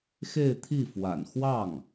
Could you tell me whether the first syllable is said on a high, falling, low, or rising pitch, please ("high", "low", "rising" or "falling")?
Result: falling